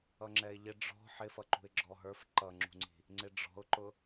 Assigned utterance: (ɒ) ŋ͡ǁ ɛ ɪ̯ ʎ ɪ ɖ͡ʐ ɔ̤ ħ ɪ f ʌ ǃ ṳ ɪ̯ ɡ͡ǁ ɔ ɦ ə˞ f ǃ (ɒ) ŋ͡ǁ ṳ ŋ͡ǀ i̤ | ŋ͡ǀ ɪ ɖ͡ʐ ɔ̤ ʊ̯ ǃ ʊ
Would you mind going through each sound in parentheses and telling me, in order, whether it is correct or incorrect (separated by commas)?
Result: incorrect, incorrect